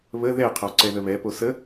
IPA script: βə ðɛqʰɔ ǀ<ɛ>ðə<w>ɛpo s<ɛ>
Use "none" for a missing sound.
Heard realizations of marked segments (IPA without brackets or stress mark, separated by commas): ɛ, β, ə